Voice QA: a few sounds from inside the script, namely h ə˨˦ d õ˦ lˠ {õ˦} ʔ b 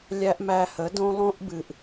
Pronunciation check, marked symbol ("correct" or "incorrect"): correct